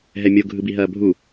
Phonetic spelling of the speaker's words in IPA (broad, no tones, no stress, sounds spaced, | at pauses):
ɦ ɛ mʲ o ɡʱ ɯ b i ɦ ɐː bʱ u